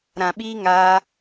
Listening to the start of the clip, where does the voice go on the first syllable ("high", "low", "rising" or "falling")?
low